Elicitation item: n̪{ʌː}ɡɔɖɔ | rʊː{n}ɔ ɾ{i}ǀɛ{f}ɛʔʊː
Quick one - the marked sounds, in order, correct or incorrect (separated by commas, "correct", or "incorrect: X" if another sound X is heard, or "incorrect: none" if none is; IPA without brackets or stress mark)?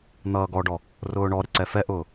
correct, incorrect: ɳ, incorrect: ɪ, correct